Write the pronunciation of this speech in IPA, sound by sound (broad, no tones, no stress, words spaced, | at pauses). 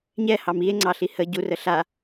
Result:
ɲɛhɑm ie̯ŋ͡ǀɑɬi hə ɟurə ɬa